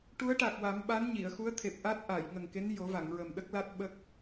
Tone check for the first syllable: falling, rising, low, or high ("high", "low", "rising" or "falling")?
rising